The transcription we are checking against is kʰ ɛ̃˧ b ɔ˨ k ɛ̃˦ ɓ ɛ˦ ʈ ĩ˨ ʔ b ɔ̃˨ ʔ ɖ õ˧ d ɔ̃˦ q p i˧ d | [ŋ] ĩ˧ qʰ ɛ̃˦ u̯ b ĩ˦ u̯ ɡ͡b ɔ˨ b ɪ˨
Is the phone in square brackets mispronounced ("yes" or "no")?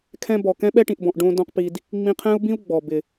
yes